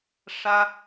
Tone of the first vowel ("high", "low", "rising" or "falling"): high